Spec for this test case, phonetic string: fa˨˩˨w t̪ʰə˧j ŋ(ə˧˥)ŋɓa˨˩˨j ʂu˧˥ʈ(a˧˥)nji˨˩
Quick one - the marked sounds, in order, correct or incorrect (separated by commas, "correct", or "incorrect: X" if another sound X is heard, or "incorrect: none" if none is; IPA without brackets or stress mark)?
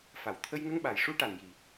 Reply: incorrect: ə˧, incorrect: a˨˩